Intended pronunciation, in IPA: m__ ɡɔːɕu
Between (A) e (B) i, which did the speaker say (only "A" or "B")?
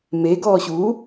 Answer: A